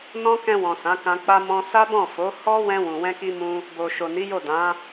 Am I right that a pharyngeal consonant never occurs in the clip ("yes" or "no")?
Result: yes